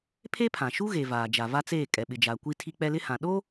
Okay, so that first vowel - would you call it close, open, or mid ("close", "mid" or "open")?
mid